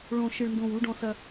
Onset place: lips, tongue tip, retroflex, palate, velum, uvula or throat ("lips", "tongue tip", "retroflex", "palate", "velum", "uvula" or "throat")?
retroflex